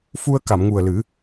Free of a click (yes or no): yes